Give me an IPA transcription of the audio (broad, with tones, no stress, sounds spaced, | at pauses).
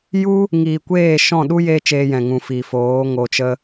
j u˦ | ŋ iː˨ kʷ eː˦˨ ʃ ɔ̃˦˨ ɗ u˦ j e˦ t͡ʃ eː˧ j ɛ̃˨ ŋ ũ˨ f i˨ f oː˨˦ ŋ o˧ t͡ʃ ə˦